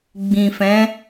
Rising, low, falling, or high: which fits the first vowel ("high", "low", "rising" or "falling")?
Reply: low